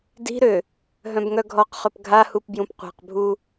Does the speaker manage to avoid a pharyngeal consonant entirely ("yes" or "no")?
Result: yes